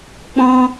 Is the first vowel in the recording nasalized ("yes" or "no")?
yes